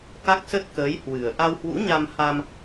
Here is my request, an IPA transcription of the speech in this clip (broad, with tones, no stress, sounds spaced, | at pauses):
k a˦˥ k̚ s ə˦˥ t̚ k əː˨˦ j h w ɨ˨˩ ə̯ ʔ a˧ w h w ṵ˧˥ ɲ a˧ m h a˧ m